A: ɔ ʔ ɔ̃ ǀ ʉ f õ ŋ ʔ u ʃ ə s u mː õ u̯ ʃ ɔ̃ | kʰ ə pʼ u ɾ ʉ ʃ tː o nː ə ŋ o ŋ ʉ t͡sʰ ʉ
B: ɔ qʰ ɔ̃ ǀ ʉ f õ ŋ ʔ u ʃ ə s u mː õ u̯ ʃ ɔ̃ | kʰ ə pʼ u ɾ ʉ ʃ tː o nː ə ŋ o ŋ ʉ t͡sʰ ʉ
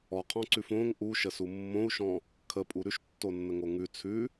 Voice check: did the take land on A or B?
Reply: B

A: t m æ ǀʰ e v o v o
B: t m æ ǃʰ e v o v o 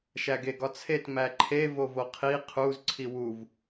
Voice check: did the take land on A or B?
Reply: B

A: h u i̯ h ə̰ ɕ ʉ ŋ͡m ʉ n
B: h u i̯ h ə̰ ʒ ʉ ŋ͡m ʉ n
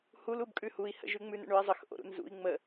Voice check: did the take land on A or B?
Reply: B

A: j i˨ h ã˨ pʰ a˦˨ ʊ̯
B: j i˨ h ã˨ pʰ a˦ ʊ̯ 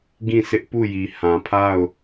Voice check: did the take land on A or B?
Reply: A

